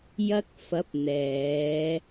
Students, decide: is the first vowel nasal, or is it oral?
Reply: oral